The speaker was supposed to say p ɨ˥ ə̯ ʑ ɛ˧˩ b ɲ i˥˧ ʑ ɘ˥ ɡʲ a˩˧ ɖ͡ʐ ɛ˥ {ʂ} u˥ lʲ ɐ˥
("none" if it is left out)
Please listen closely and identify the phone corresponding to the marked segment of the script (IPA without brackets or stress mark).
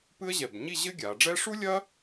ʂ